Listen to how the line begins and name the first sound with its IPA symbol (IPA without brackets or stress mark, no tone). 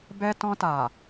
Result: b